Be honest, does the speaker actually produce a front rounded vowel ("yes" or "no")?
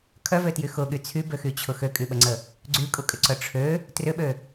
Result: yes